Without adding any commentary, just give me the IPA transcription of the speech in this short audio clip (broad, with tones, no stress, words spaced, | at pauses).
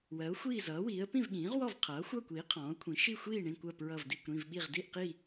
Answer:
wɜ˩˥ʊ̯ xʷiː˥˨zʌː˩˥wiː˩˥ə̯ pĩ˥˨vɠĩː˩˥ʁwɔ˥˨v qʰʌː˩˥xʷʌː˥˨kʷiː˩˥ qʰɔ̃ː˩˥ʊ̯kʷʰĩ˩˥ ʃi˥˨xʷiː˥˨ ɳĩ˥˨kʷɜ˥˨ pɹʌ˥˨vdi˥˨kʷ ɾĩ˥˨vɓi˥˨ʁ di˥˨ʔqi˥˨